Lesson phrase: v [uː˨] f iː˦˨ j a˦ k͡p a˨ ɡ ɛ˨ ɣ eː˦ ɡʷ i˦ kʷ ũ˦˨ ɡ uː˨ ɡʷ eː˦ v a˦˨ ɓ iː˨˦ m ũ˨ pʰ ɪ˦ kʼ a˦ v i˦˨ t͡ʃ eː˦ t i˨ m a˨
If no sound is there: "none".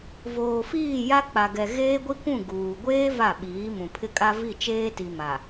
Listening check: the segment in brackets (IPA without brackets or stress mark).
oː˨